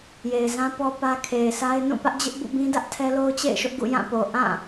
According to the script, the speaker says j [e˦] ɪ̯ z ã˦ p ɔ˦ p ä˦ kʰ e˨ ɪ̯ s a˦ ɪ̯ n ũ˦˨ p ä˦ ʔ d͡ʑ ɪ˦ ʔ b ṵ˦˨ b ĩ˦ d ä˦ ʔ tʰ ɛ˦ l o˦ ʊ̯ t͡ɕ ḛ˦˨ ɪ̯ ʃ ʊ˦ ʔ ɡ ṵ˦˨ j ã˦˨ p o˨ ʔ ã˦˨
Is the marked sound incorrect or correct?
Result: incorrect